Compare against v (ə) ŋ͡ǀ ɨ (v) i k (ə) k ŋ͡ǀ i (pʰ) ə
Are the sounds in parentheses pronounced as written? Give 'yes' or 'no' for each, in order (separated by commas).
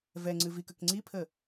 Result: no, yes, yes, yes